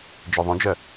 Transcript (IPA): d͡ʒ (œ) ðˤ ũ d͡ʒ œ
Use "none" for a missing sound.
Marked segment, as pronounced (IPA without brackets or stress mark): ø